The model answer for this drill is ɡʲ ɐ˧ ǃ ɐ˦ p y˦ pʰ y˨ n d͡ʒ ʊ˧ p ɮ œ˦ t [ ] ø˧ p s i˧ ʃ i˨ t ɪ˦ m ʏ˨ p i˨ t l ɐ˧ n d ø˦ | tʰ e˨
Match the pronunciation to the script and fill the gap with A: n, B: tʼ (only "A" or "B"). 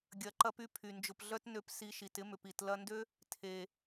A